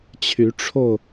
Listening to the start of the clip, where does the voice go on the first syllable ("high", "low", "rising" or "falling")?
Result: rising